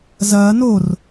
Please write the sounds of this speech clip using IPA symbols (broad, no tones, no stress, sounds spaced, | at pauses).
z ɐː n o r